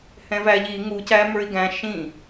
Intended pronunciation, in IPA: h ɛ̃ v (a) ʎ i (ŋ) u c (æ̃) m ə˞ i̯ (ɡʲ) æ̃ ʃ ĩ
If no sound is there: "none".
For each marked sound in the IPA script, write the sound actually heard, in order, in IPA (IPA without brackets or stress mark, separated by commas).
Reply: æ, ŋ, æ, ɡ